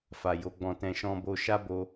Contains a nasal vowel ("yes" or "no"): yes